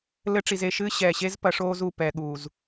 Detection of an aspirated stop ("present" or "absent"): absent